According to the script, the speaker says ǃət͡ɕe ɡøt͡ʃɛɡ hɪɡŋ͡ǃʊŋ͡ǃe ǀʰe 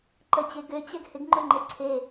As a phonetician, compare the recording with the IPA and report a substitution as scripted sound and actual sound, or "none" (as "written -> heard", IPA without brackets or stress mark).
t͡ʃ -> t͡ɕ